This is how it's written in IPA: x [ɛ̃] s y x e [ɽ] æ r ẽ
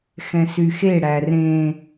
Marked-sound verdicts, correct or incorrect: correct, correct

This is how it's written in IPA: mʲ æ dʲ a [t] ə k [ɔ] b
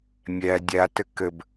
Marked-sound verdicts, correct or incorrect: correct, incorrect: ə

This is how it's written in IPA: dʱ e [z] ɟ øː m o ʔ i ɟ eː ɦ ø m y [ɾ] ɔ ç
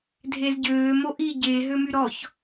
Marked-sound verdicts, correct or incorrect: correct, correct

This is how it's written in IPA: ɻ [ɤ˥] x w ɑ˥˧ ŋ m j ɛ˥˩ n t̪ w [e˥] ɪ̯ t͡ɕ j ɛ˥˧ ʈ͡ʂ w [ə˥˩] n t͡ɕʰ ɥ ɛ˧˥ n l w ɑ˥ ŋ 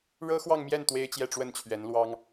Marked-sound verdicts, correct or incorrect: correct, correct, correct

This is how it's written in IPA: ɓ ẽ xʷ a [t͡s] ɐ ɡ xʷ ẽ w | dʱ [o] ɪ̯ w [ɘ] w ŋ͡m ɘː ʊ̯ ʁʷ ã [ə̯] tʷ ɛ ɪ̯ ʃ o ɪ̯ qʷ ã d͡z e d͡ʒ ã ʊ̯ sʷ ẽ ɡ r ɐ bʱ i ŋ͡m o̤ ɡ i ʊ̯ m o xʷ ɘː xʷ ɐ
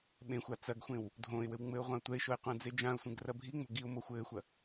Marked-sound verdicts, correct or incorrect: correct, incorrect: õ, correct, incorrect: ʊ̯

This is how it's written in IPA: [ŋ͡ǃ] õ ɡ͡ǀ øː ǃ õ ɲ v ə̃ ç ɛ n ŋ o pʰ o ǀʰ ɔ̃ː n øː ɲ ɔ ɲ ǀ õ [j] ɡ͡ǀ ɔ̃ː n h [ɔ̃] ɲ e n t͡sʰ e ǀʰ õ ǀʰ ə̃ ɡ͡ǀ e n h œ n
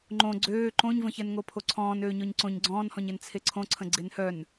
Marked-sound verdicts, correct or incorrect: correct, incorrect: ɲ, correct

